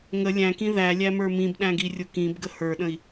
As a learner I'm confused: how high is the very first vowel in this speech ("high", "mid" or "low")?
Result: mid